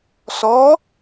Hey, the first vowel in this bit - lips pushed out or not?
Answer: yes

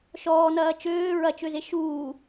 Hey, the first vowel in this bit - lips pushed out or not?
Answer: yes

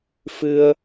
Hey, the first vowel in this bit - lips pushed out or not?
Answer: no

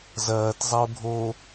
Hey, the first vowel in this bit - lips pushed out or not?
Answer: no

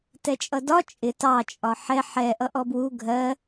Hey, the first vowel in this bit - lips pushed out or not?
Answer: no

